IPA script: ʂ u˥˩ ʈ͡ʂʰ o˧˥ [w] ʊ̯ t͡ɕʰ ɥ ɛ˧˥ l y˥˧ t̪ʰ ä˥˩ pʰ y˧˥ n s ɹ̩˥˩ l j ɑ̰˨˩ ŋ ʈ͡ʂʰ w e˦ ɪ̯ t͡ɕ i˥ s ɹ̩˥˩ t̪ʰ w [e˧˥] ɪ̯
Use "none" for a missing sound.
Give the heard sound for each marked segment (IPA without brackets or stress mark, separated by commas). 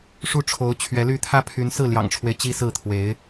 none, e˧˥